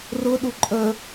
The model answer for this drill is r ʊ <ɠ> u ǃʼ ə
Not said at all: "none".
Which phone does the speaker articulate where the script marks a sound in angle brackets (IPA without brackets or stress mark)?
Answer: ɗ